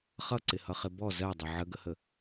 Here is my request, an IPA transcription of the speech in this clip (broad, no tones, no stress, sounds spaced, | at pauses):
χ ʌ ǀ ɪ h ʌ χ ɪ b ɔ z ɜ dˤ ə ʕ ə ɡ ə h ə